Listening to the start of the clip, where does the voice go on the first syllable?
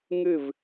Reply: falling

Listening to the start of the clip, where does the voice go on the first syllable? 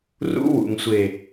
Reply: high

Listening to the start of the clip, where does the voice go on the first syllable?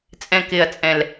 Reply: low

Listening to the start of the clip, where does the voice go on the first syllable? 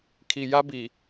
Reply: low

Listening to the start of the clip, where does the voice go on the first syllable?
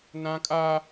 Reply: high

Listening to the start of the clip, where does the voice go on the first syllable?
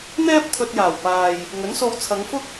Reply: high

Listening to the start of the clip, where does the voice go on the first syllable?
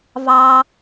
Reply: high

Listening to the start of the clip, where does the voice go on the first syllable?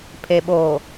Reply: low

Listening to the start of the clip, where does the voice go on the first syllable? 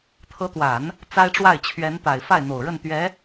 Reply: rising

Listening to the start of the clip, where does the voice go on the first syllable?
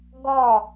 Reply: falling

